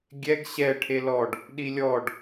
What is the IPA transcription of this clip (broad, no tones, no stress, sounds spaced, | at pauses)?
ɡʲ ɛ ɡ ɕ ɛ ʈʰ e l ɔ ɖ | ɗ i lʲ ɔ ɖ